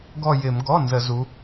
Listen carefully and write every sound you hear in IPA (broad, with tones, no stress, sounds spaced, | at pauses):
ɡ ɔ˦˨ j ɪ˧˩˧ m ɡ ɔ˩˧˩ n z ə˧˩˧ z u˨˦